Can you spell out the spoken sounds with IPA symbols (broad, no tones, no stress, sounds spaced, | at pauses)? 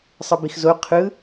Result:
sˤ ɯ b i x z o qʰ ɯ